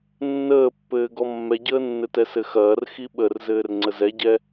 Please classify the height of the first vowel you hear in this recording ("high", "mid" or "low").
mid